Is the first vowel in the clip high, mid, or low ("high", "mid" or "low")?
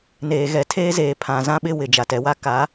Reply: mid